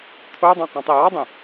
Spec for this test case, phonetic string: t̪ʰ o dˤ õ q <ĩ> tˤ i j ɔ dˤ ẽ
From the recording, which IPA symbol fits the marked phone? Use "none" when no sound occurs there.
ĩ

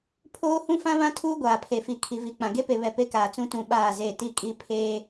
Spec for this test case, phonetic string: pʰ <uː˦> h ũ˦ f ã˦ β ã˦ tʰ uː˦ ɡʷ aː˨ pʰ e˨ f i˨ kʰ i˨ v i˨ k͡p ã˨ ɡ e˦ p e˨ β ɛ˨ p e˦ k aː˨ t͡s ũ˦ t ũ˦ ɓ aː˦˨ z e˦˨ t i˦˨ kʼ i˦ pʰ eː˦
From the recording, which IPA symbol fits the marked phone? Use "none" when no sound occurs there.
oː˦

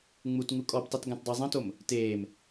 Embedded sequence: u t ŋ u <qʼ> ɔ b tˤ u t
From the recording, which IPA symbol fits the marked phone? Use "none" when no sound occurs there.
kʼ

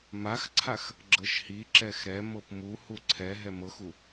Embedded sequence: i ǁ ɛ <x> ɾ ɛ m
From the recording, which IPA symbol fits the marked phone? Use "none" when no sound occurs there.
x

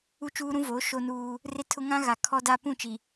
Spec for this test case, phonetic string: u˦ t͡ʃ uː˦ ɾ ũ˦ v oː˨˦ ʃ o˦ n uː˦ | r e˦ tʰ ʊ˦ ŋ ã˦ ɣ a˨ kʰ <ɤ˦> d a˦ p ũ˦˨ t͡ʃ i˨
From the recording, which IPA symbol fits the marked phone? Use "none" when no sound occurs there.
ɔ˦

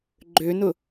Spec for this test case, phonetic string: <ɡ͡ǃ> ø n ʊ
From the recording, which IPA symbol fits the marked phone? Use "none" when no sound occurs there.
ɡ͡ǃ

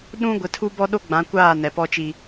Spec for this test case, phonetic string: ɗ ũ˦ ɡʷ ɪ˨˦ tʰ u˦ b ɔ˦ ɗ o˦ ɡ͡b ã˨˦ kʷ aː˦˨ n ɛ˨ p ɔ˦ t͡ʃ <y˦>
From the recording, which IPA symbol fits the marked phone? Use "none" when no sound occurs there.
i˦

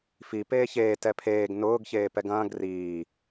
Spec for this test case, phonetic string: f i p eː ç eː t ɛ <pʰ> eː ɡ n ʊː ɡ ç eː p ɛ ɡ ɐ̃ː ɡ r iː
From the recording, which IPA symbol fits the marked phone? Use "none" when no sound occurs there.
pʰ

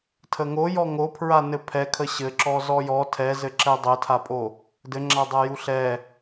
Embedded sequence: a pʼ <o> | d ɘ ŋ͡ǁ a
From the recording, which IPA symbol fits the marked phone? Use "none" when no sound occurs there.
o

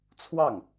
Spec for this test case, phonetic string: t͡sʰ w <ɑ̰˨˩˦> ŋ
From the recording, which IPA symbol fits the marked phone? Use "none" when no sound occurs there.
ɑ˥˩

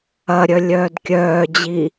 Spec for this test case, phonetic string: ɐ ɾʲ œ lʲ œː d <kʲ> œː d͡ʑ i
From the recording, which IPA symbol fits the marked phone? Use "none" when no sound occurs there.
kʲ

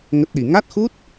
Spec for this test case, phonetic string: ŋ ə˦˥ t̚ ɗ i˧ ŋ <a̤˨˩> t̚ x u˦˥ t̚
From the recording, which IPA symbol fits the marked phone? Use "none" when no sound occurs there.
a˦˥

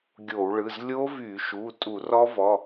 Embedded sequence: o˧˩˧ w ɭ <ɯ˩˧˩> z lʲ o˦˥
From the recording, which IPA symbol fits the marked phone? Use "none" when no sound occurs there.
ɯ˩˧˩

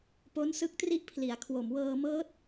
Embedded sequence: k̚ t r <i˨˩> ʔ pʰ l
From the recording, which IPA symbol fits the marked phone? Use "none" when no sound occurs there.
i˥˩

